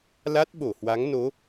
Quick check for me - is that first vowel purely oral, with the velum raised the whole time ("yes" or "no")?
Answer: yes